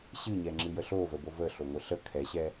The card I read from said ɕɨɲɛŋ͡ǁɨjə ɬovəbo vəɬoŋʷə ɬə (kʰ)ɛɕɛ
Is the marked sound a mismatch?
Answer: no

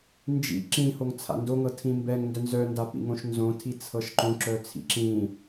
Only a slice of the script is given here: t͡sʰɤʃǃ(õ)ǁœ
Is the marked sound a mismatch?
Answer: no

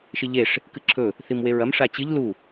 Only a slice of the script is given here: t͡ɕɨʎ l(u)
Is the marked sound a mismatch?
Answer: no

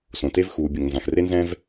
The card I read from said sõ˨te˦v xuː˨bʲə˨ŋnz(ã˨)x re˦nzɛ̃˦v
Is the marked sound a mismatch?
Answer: no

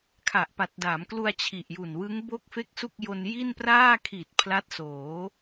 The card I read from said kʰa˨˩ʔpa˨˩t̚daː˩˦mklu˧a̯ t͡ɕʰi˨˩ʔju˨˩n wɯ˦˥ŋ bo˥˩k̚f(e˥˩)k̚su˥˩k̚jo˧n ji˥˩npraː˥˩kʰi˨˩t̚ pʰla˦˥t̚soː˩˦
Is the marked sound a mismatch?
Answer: no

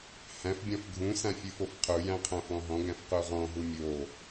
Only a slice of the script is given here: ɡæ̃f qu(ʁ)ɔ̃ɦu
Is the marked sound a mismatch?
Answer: no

